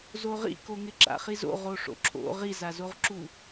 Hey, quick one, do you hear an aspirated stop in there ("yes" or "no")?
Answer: yes